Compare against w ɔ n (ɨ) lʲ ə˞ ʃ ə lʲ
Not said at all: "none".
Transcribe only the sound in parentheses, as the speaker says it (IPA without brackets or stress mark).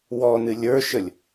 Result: ɨ